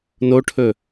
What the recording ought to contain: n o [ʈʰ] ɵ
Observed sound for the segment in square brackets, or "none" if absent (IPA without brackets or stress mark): ʈʰ